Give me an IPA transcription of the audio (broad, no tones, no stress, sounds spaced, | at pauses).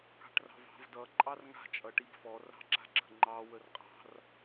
k ɑ̤ ʈ r ɑ̤ v ɑ̤ v d ʌ ǃʼ ɑ r ŋ a̤ t͡ʃʼ ʌ ʈ i b f ɔ r ɑ̤ ǁ a̤ ɡ͡ǁ ə̤ ŋ͡ǃ ɑ w ə r qʼ ɑ̤ r